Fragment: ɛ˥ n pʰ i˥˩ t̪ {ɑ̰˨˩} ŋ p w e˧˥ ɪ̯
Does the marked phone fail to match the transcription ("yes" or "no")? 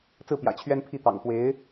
no